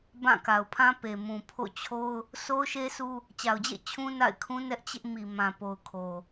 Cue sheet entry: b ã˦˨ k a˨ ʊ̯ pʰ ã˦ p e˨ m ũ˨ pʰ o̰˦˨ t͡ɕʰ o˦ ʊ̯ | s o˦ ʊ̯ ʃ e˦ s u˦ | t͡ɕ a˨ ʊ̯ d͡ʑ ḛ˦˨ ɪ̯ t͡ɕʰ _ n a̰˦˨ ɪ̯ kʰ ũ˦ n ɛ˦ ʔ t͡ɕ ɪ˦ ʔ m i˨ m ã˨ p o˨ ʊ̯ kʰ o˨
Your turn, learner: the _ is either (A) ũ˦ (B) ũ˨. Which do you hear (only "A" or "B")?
A